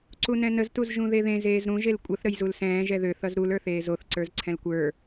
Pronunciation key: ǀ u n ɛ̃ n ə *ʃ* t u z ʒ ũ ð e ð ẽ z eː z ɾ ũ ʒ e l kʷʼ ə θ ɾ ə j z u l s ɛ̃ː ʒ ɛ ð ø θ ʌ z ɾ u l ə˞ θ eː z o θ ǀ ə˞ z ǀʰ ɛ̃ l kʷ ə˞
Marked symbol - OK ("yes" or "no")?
no